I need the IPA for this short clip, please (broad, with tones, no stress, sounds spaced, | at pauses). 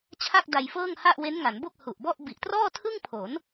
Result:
t͡ɕʰ a˥˩ k̚ d a˧ j f ɤː˥˩ ŋ h a˥˩ ʔ w e˦˥ n ŋ a˩˦ n b o˥˩ k̚ h u˨˩ ʔ b ɔ˥˩ ʔ b i˨˩ ʔ t r ɔː˥˩ tʰ ɯ˥˩ ŋ pʰ o˩˦ n